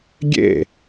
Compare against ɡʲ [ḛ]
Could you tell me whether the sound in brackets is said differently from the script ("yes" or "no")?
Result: no